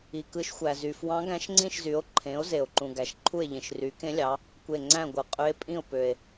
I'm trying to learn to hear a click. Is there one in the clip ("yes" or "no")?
yes